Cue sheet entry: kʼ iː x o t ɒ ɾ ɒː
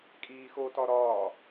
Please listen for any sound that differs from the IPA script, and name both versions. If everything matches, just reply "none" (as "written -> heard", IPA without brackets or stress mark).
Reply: none